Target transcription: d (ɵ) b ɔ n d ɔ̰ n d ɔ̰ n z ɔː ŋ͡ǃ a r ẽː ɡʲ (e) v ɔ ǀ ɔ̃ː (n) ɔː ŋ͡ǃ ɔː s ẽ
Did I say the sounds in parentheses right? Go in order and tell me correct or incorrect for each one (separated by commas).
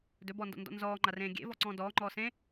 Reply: correct, incorrect, incorrect